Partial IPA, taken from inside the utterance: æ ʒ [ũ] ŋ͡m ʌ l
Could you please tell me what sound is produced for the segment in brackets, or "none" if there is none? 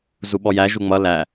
u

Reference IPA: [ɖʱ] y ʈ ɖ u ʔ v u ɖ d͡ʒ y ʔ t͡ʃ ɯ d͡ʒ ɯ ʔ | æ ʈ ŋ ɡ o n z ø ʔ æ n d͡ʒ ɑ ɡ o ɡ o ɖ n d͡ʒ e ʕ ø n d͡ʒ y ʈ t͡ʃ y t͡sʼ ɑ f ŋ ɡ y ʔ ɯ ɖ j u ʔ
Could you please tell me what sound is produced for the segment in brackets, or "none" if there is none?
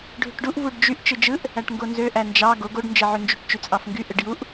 ɖʱ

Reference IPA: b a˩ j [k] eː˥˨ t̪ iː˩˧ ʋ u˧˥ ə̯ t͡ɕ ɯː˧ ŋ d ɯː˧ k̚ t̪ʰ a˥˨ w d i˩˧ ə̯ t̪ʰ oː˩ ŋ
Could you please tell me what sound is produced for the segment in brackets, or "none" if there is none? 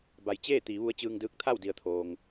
t͡ɕ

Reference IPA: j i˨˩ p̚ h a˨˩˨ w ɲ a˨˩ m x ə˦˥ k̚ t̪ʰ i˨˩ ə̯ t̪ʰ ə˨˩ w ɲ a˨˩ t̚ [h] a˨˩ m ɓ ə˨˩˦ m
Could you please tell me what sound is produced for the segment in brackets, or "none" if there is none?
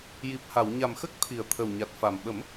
f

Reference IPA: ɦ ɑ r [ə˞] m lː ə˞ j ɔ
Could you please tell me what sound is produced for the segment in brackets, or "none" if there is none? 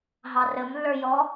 ə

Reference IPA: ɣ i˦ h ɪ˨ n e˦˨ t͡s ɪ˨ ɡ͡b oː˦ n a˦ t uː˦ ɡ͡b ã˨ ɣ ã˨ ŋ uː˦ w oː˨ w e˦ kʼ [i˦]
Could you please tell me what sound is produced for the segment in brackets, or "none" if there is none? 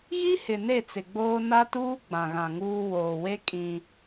ĩ˦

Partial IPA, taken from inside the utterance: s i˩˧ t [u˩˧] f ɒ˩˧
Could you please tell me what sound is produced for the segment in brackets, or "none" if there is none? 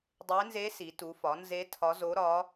u˩˧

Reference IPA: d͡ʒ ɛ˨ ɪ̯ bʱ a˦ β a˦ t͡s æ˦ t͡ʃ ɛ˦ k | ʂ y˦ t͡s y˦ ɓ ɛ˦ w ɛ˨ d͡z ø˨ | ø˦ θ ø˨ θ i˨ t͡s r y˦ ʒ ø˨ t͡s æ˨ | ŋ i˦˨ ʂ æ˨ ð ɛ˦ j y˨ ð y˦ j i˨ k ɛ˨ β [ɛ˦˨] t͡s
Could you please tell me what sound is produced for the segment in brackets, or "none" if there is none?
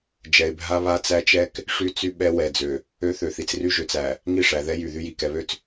ø˦˨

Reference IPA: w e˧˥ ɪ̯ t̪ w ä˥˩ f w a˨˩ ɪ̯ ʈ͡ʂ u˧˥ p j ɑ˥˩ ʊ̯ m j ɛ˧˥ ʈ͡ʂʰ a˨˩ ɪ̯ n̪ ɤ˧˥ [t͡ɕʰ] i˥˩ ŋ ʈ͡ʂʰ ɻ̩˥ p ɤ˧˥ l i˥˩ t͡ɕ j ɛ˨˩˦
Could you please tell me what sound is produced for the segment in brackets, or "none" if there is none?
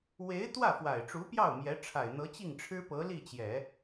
t͡ɕ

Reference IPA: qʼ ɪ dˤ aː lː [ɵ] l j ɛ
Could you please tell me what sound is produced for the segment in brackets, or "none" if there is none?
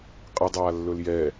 ɵ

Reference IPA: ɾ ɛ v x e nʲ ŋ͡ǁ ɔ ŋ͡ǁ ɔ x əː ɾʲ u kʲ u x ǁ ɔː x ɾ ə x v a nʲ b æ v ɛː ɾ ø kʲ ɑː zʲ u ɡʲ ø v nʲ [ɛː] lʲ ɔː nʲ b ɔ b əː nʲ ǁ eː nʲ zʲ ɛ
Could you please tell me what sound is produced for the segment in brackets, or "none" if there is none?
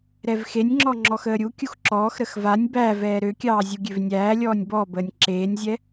æː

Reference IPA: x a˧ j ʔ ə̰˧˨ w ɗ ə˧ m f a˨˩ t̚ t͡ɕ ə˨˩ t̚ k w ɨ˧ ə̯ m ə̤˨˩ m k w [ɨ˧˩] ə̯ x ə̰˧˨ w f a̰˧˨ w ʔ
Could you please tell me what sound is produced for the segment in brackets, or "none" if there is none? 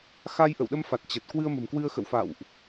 ɨ˧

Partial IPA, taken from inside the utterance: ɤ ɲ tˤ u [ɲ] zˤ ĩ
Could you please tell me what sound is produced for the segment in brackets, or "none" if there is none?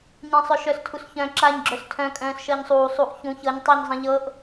ɲ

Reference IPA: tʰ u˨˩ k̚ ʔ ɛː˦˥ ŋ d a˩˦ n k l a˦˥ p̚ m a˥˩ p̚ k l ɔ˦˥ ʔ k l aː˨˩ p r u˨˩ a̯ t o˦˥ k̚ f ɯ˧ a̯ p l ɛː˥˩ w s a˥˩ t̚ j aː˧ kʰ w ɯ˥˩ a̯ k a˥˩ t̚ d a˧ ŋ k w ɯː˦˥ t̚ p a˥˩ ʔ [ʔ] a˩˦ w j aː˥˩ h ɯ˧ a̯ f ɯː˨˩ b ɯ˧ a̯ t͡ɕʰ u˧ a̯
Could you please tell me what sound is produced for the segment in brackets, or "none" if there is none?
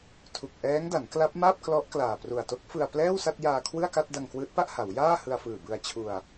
h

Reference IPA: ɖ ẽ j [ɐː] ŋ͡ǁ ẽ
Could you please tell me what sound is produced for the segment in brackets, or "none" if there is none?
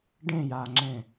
aː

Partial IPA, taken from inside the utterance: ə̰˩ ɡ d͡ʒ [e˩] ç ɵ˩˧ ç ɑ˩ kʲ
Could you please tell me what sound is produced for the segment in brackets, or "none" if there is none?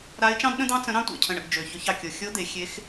ø˩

